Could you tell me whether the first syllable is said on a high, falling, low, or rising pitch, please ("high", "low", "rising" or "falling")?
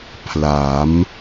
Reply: rising